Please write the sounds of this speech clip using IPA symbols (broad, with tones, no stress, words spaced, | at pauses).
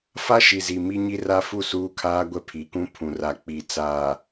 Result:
fa˦ʃi˨zi˨ mi˦ɲi˦ra˦ fu˦˨suː˦kʰaː˦ ɡʷɛ˦pʰi˨˦kũ˦ pʰũ˨ra˨ k͡pi˨ t͡saː˨